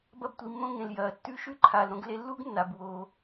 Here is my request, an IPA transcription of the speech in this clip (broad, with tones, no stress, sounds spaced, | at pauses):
b ɐ˧ b tʷ i˩ mː õ˧ ŋ ẽ˩ l j ɐː˩ tː ʉ˥ ʃ ʉ˥ ǃʰ aː˩ l ɾ õ˧ ɡ l e˧ lː u˥ ɡ nː a˩ b w oː˩